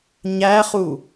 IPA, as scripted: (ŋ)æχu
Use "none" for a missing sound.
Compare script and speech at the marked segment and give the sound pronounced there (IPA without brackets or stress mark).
ɲ